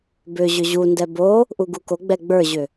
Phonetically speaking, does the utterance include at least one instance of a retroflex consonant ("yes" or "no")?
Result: no